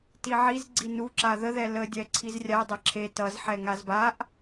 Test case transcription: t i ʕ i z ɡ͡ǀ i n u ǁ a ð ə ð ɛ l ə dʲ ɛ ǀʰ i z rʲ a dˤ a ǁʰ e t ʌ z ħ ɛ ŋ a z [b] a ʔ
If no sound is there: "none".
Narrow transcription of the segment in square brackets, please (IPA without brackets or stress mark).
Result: b